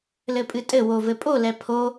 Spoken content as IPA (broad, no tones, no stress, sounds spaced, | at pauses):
l ɘ pʼ ɨ tʼ ɘ w o v ɘ pʼ o l ɛ pʰ o